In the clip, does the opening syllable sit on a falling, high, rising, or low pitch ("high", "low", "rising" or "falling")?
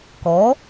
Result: rising